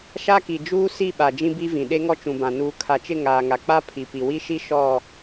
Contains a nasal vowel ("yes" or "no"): yes